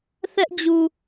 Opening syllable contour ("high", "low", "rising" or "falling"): high